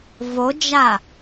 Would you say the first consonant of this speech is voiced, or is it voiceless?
voiced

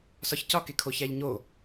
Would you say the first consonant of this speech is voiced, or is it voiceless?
voiceless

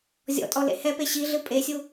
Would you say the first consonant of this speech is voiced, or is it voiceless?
voiced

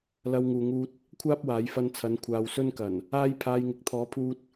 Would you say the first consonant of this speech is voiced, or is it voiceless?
voiced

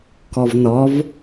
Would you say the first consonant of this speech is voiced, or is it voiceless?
voiceless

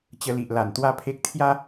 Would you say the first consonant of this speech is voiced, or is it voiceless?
voiceless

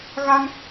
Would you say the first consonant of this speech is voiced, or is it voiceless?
voiced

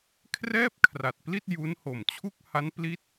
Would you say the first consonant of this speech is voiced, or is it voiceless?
voiceless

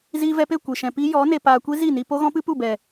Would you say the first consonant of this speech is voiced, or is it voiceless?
voiced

